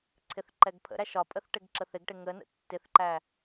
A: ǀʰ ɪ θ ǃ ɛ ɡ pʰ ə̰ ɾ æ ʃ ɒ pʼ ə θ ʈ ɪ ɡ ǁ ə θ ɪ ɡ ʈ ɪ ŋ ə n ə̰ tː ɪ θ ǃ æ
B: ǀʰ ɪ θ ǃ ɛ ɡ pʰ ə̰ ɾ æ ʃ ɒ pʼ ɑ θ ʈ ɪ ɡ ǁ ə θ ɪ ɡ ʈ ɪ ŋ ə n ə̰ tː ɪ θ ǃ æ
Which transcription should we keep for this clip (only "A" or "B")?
A